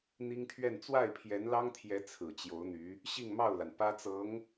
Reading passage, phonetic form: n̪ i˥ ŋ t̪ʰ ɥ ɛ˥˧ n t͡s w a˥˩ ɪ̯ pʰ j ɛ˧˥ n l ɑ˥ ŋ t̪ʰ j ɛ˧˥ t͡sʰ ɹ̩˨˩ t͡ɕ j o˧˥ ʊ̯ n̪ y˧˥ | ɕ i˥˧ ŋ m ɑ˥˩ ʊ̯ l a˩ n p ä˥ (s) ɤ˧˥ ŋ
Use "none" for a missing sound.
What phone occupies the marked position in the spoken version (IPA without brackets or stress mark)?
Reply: t͡s